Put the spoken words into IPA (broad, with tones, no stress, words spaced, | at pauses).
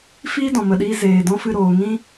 fiː˦dɔ̃˨mə˨ɗiː˧ zeː˨dɔ̃˦fɨ˧ ɾoː˨ŋĩ˦